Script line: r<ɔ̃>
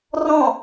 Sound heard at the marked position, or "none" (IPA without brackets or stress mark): ɔ̃